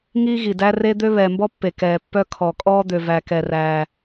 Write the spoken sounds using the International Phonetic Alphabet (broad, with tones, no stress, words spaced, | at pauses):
ŋiː˦ɣi˨dæ˦ re˦d̪ø˦ βɛː˨mbɔ˦pːe˨ kɛː˨pːœ˦ kʰɔ˨kʼɔː˦ d̪ø˨væ˨kɛ˨ ræː˦